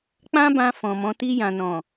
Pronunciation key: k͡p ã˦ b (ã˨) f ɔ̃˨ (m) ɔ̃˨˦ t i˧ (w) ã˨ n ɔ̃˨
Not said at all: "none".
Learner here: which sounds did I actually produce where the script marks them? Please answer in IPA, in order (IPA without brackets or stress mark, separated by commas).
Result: ã˧, m, j